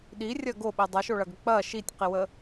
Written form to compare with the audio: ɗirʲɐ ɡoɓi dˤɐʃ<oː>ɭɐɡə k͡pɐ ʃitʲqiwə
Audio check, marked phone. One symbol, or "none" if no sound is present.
o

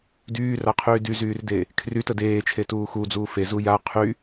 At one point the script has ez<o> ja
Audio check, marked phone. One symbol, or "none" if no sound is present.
u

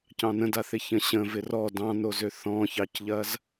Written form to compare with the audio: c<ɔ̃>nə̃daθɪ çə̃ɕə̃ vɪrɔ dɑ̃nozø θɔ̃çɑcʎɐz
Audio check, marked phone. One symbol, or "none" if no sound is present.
ɑ̃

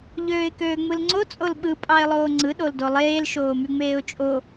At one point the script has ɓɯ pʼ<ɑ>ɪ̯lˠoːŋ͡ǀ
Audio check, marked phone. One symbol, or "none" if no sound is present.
ɑ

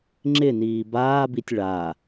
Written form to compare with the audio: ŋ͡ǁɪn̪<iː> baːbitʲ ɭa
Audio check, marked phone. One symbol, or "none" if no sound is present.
iː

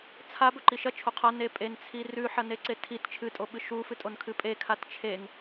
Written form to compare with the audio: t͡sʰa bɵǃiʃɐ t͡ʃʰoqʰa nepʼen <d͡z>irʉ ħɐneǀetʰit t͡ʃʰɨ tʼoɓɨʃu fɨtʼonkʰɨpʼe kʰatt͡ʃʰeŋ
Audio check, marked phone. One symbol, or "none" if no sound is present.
t͡sʰ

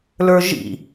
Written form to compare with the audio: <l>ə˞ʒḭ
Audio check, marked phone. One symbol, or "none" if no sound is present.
l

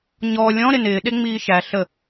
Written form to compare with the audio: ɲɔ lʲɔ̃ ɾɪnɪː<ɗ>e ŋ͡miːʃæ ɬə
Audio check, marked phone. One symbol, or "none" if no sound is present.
ɗ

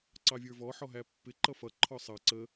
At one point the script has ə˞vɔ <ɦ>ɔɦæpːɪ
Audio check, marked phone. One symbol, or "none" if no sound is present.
ħ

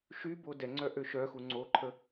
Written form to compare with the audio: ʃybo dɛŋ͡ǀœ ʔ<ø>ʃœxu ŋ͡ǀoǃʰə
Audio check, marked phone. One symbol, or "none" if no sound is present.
ø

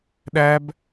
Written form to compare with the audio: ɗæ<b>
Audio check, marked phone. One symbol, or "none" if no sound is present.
b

